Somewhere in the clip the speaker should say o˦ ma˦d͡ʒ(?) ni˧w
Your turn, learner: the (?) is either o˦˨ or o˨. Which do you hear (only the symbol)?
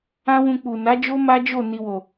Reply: o˦˨